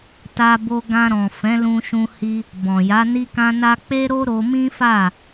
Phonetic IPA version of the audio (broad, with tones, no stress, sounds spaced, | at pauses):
t a˦ b o˦ ɡ ã˧ ɾ ɔ̃˨ f ɛ̃˨˦ l ũ˧ ʃ ũ˧ h i˧ | b ɔ̃˨ j a˨˦ n i˦ k ã˦ n a˦ k͡p e˦ ɾ o˦ ɾ o˧ m ĩ˦ f a˦˨